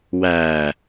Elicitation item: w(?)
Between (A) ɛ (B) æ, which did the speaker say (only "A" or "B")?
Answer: B